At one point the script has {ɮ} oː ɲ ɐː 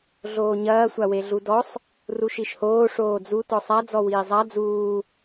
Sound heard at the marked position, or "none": ɮ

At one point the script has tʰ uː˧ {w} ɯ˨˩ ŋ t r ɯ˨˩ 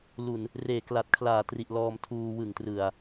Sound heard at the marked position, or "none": w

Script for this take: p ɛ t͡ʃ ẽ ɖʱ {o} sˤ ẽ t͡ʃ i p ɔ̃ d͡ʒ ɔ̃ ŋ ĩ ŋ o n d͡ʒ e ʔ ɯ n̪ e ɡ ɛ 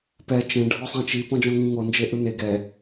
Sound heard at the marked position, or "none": ɔ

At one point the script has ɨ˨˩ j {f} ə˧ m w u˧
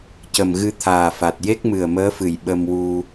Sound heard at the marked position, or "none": ɓ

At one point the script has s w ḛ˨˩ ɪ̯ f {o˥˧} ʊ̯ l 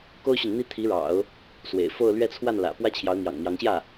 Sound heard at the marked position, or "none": o˥˧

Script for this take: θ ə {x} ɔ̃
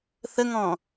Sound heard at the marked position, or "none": ŋ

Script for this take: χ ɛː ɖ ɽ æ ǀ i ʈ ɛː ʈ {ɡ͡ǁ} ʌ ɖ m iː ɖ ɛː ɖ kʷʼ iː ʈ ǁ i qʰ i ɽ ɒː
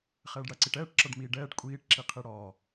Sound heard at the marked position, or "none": ǁ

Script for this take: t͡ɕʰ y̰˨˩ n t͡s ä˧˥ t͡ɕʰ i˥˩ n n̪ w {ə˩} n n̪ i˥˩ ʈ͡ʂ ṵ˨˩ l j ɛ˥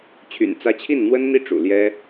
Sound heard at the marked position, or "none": ə˥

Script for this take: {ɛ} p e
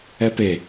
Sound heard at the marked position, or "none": ɛ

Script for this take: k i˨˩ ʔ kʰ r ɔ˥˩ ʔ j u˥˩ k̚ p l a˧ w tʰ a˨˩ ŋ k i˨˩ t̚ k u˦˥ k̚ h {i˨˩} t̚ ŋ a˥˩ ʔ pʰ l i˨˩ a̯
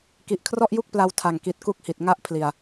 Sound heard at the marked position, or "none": i˨˩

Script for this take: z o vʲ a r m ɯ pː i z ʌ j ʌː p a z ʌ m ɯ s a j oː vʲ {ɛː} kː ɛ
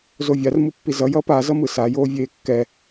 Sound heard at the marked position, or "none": eː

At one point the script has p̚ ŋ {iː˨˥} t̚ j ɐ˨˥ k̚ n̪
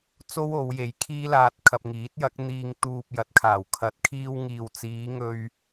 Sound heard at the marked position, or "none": iː˨˥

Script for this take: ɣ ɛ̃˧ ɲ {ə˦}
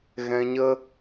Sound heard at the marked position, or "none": ə˦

